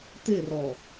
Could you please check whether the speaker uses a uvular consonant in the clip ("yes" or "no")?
no